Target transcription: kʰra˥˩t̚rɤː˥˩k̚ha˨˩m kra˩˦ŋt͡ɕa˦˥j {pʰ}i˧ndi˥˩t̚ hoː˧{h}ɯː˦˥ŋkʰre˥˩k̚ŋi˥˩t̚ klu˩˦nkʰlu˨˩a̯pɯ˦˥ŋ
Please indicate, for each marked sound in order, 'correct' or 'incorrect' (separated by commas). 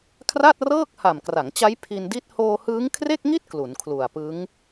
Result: correct, correct